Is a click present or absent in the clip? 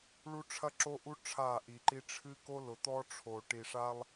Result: present